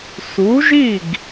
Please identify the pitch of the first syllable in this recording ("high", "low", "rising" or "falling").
rising